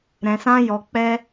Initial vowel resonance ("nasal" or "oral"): nasal